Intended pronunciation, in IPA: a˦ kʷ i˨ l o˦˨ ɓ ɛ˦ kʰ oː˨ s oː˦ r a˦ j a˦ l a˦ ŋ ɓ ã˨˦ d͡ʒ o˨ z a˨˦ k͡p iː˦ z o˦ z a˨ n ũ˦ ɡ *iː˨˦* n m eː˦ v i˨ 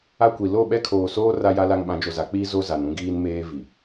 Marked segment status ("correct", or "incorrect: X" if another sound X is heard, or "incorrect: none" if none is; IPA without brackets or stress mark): incorrect: iː˦